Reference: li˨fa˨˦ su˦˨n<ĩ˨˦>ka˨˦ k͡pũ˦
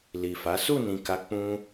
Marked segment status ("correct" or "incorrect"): incorrect